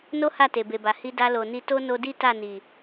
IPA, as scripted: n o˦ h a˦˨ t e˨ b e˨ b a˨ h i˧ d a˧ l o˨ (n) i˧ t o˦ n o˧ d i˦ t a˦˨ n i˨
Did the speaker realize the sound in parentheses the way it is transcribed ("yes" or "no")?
yes